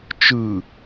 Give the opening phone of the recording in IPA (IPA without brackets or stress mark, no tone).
t͡ʃ